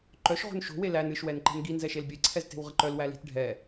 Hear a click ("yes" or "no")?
yes